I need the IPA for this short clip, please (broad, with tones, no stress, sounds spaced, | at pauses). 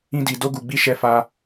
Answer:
ĩ˧ d i˨ d o˧ ɡ u˨ ɡ͡b i˨˦ ʃ ɛ˧ f a˧